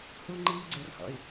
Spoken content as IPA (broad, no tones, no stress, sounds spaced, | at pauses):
h uː ŋ͡ǃ iː ɡ͡ǀ e r h ɔ̰ y̯